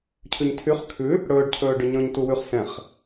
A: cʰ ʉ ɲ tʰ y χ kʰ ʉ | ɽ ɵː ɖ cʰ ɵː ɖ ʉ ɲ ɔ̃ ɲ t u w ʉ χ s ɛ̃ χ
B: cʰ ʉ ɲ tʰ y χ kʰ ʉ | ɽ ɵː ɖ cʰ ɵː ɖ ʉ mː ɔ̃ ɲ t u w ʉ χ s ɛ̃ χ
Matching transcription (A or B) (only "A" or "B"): A